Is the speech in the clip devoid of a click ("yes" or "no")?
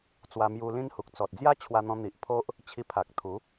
yes